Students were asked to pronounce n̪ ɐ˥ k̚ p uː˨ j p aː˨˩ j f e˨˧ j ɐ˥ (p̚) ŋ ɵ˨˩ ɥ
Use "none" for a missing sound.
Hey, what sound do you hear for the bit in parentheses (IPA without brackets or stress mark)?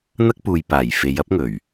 p̚